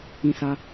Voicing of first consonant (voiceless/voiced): voiceless